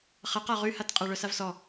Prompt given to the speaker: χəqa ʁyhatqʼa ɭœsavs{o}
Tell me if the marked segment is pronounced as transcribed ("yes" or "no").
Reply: no